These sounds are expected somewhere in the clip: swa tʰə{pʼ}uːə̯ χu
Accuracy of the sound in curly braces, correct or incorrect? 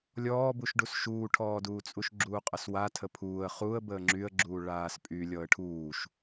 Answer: incorrect